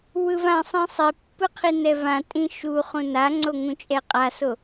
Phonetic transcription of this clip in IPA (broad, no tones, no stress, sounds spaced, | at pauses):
w ɯ v ã sˤ ĩ sˤ i pː ɯ qʰ i n ɛ v ã tʼ ĩ ʃ u χ ũ n a ŋ͡ǀ o ŋ ũ t͡ʃʼ ɛ qʼ a s o